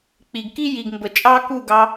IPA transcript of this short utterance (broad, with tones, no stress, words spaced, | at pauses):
k͡pi˨ɡ ki˦ji˨ɡmbə˨ t͡ʃʼɑ˦ku˦˨ɡɑ˧